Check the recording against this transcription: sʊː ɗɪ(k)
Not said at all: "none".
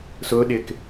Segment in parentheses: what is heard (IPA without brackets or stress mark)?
k